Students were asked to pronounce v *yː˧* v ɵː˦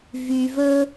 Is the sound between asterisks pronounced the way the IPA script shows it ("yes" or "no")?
yes